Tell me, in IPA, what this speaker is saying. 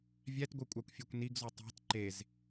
vʲ æ t ɡʷ ɯ kʷʼ ɑ kʷ fʲ ø kʷ n i ɡ z u tˤ æ̤ t ǃ e z

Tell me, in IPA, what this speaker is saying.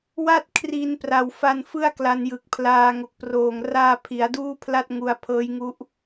w a˥˩ t̚ kʰ r i˧ n p r a˨˩ w f a˧ n f ɯ˥˩ a̯ k l a˧ n j ɯ˨˩ k̚ pʰ l aː˧ ŋ o˨˩ k̚ p r oː˨˩ ŋ r aː˧ pʰ i˩˦ a̯ d uː˥˩ pʰ l a˥˩ t̚ ŋ u˧ a̯ pʰ ɤː˦˥ j ŋ u˦˥ ʔ

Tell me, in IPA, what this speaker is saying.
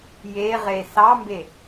j e ʁ e s ɑ m b e

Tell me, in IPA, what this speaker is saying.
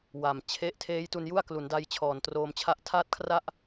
w a˨˩ m t͡ɕʰ e˦˥ ʔ tʰ eː˦˥ j t u˧ n j u˥˩ a̯ k l u˩˦ n d a˧ j t͡ɕʰ ɔː˨˩ n t r oː˧ m t͡ɕʰ a˥˩ ʔ tʰ a˥˩ t̚ kʰ r a˥˩ ʔ

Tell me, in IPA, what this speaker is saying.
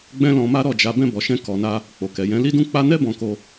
ɡ͡b ɛ̃˦ l ɔ̃˧ m a˦ ɾ ɔ˦˨ d͡ʒ a˧ b ɛ̃˧ b ɔ˨ ʃ ɛ̃˧ k ɔ˧ n a˦ | k͡p o˨ k ɛ˨ j ɛ̃˨˦ l i˦ d ũ˦ k͡p a˦ n ɛ˦ b ɔ̃˧ k o˧

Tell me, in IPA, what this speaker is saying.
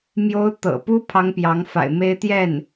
m j o˥ ʊ̯ t̪ ɤ̰˨˩ p u˥ pʰ ɑ˥ ŋ p j ɑ˧˥ ŋ f a̰˨˩ ɪ̯ m e˥ ɪ̯ t̪ j ɛ˥˩ n

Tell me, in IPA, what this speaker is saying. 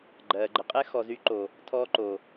ɡ͡ǃ ɜ˨ ɡ͡ǃ ə˨ qʼ ɛ˦ x ɔ˨ z y˧ ǃ o˨ | tʰ ɔː˧ ǃ oː˨

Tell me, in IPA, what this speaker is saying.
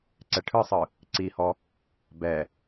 ǀ ɛ ʈʰ ɯ sˤ ɯ | ǀ i h ɔ | b ɛ

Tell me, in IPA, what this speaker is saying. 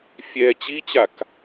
fʲ ɛ t͡ɕ i t͡ɕ a k

